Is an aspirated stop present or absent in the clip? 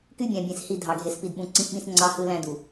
absent